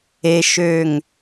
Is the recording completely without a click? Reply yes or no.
yes